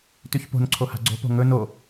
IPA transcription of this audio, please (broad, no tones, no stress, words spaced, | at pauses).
tʉçpo̤nǀʰo ha̤ɡ͡ǀo̤po̤ ŋɵ no